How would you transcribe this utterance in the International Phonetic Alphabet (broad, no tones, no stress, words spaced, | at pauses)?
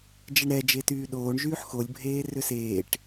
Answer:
d͡ʒɛɳɾɛ d͡ʒetyːɗoːɳ ʒyːħxolʲ bʱeːrʏseːʈ